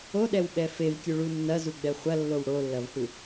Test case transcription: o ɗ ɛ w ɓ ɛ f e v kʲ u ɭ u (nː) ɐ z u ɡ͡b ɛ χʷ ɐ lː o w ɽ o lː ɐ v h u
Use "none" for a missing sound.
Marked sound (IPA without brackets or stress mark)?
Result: nː